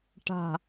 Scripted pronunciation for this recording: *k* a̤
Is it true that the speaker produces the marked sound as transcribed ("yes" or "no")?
no